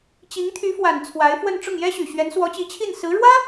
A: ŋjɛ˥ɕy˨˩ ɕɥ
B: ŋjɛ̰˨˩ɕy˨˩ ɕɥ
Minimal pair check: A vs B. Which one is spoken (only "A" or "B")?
A